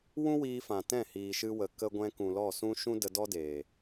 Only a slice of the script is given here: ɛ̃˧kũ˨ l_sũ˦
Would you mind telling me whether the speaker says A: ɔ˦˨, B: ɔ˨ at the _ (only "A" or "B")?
A